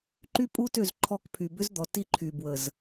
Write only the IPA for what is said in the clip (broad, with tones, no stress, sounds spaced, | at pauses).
ǃ y˦ pʼ u˦ t ø˦˨ z ǃʰ ɔ˦ k pʰ y˨ b ʏ˦ z d̪ ɔ˨ t i˦ ǃʰ y˨ b w ə˨ z